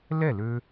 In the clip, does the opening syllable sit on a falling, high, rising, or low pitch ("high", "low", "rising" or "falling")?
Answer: falling